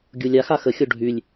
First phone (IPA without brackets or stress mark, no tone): ɡʲ